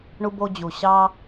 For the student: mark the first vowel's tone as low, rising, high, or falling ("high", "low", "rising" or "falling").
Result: high